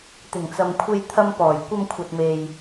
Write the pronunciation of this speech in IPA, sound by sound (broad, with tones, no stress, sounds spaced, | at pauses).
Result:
t̪ ɪ˨˩ ŋ t͡s ɐ˨ m kʷʰ e˧ j t̪ʰ ɐ˧ m p ɔː˨˩ j kʷ ɐ˧ m kʷʰ ɐ˨ t̚ m e˨ j